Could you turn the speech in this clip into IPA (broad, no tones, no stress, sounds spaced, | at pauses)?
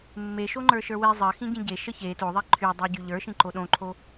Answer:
mː e ʃ o ŋ͡ǃ ə˞ ʃ ə˞ w e zˤ ɜ x ĩ ɟ ĩ ɟ e ʃ ə ç e t o ðˤ e ǃʰ y dˤ ɜ ɟ y ʎ ə˞ ʃ ĩ ǃ o ɗ õ ǃʰ o